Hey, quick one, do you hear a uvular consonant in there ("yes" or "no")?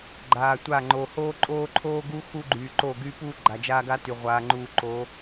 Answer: yes